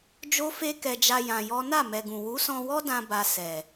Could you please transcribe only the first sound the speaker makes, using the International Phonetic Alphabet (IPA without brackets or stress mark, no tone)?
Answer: d͡ʒ